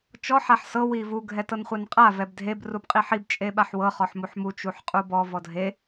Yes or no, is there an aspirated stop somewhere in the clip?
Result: no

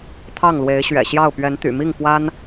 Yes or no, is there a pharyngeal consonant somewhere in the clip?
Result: no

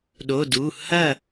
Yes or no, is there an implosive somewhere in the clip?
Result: yes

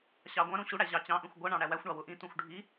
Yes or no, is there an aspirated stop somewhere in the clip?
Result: no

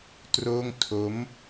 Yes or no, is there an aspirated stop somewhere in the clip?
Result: yes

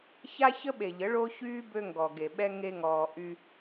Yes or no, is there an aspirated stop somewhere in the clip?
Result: no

